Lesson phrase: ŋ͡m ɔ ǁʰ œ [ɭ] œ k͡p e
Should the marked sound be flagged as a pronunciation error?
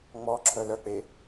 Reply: yes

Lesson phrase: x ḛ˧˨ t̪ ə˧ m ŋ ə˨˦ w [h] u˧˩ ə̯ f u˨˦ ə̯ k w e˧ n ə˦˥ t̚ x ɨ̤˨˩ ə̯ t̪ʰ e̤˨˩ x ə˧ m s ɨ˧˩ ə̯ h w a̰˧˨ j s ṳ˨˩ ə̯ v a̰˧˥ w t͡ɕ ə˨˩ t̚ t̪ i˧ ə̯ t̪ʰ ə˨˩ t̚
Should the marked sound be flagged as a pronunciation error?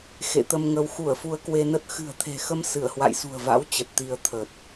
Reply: yes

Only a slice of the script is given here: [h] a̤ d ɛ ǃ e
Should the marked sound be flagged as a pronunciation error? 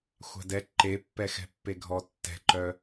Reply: yes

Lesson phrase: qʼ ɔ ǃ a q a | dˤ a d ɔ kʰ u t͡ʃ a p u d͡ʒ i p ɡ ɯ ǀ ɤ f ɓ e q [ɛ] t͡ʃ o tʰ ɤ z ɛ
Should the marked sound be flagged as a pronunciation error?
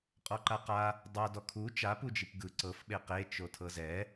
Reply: yes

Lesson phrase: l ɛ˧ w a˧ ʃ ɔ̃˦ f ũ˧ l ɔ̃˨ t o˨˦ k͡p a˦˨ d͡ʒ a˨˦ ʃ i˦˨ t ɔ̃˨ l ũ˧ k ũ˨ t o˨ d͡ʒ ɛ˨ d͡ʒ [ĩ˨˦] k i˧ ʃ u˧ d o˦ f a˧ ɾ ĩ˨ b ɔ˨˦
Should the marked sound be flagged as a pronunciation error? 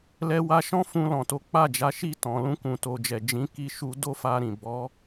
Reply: no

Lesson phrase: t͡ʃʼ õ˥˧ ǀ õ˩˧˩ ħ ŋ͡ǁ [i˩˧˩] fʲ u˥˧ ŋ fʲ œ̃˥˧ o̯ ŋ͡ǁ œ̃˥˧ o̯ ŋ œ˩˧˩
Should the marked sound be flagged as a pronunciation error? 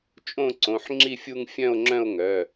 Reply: yes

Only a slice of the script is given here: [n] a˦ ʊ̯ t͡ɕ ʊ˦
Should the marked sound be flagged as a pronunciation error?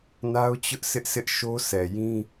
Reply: no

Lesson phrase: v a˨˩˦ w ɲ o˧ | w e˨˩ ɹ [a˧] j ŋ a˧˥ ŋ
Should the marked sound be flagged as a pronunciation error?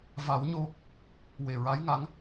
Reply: yes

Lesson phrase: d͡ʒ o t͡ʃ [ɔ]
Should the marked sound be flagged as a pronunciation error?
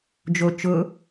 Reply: yes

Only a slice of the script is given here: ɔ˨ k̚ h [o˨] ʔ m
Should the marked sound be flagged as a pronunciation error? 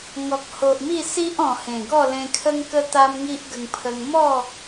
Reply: no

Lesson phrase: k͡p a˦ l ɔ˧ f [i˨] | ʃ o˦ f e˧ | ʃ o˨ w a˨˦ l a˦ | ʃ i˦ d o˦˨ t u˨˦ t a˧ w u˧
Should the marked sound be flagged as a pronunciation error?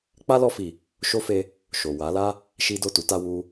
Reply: no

